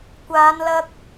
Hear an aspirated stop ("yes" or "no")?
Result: no